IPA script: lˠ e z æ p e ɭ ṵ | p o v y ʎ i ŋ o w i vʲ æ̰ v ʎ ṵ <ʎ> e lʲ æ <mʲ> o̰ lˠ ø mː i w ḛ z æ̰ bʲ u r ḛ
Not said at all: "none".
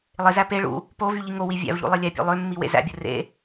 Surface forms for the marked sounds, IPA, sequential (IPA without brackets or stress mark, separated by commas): lˠ, pʲ